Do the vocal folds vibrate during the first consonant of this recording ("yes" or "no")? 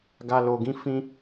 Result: yes